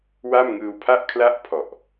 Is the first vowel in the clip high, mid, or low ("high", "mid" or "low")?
low